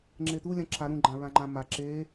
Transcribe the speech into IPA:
ŋ͡ǁ e t̪ u lʲ ã ǁʰ a ɾ ũ ɡ͡ǃ ã ɹ ã ŋ͡ǃ ã m a ǁ e

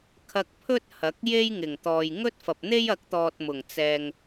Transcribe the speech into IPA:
kʰ ɐ˧ k̚ pʰ ɵ˥ t̚ h ɐ˨˥ k̚ j e˥ j ŋ ɪ˨˩ ŋ t̪ ɔː˨ j ŋ ɵ˥ t̚ f ɐ˨ p̚ n̪ e˥ j ɐ˨˥ k̚ t̪ ɔː˨ t̚ m ʊ˨˩ ŋ t͡s ɛː˨ ŋ

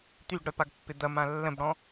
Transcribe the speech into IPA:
t̪ y ɡ ɽ œ p a ɡ pː ɪ d̪ ɐ m ã lː ə̃ b ɽ ɔ̃

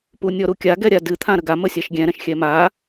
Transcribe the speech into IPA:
p u nʲ ɔ ɾ u kʲ a ɡ ɛ ɾʲ a d ɨ t̪ʰ ã ɾ ə ɡ a m ə sʲ a ʃ ɡʲ ɛ̃ ɾ ɛ̃ ʃ xʲ ɛ m a

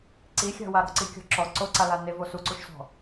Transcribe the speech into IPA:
ǀ i xʲ a̤ w a ɾ ɔ̤ ǀ i kʲ ɔ̤ ǁ ɔ ǀ o ǀ a l a n e v o s u ǀ u ʃ s ɔ̤

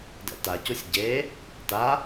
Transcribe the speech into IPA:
d ɛ̰ t a c u sʲ ɟ e | t a

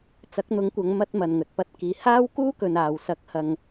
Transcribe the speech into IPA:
t͡s ɐ˨˥ k̚ n̪ ʊ˨˥ ŋ kʷ ɐ˨˧ ŋ m ɐ˧ t̚ m ɐ˨ n ŋ ɵ˨ t̚ p ɐ˧ t̚ k iː˨ h aː˥ w k uː˥ k ɵ˨ n aː˨ w s ɐ˨˥ k̚ h ɐ˨ ŋ

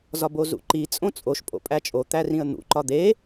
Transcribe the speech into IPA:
z ɒ b o z ṵ ǃ i t͡sʼ õ t͡sʼ o ʃ pʼ o̰ pʼ æ t͡ʃʼ o t̪ æ r ĩ ə̯ n̪ ṵ ǃ ɒ d̪ e

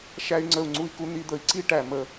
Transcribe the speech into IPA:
ʃ æ˧ y̯ ŋ͡ǀ ə˧˩ u̯ ŋ͡ǀ u˧ i̯ k u˧ n̪ i˧ d̪ ə˧˩ i̯ ǀ i˥˧ ʈ æ˧˩ m ə˧

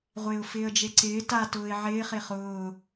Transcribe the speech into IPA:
ʁʷ ɪː ʊ̯ f ɪː ə̯ d͡ʒ e ǀ ɪː t a t ʊː ɪ̯ ʕ ɪː χ e χ ʊː

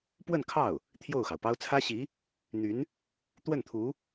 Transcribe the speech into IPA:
p w ə˥˧ n kʰ ɑ˥˩ ʊ̯ | t̪ʰ j o˥˩ ʊ̯ x ɑ˩ ʊ̯ p ɑ˥ ʊ̯ t͡sʰ ä˥ ɕ i˧˥ | n̪ y˧˥ n | t̪ w ə˥˩ n t̪ʰ u˧˥

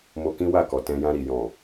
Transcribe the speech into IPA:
m o˧ k ĩ˦ w a˦˨ k ɔ˨ t ɛ̃˧ j ã˧ ɾ i˨ j ɔ̃˨

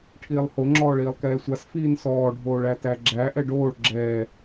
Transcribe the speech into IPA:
ʈʰ iː lˠ h o ŋ͡ǁ ɔː ɭ iː lˠ k ɛː sʷ a s f iː n s ɔː ɖʱ oː ɭ æ t æ ɡ͡ǁ æ ʔ ɛ ɖ oː ɭ ɡ͡ǁ ɛː

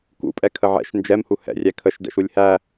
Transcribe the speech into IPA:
k ṵ pʼ ɛ kʰ ə ʕ ɛ̰ ʃ n d͡ʒ ɛ m h u h ɛ̰ rʲ æ kʰ ə ʃ d ɛ̰ ʃ u lʲ h æ

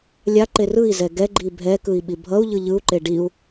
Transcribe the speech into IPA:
lʲ a ǃ e r ɯ i̯ z ɛ ɡ ɛ ɡ͡ǃ i bʱ ɛ k ɯ i̯ ɓ i bʱ ʌ u̯ ʎ ɯ ʎ ɯ u̯ ǃ e ɖ i u̯

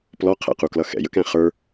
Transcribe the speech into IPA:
p l ɔ qʰ ɛ̰ q u k l ʌ x ɛ̰ j ə̰ k æ̃ χ ə˞

